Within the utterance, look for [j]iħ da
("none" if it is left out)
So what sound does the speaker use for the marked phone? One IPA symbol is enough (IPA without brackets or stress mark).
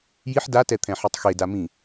j